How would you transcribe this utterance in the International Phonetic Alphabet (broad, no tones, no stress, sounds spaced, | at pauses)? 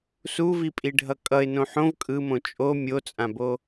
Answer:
s u v i pʼ i ɖʱ ʌ kʼ ʌ ɪ̯ n õ ħ õ v kʼ ɯ m õ t͡ʃʼ o mʲ o t͡sʼ ã b o